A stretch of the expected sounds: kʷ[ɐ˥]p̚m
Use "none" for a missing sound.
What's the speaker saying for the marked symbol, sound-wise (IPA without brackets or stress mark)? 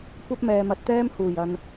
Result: ɐ˥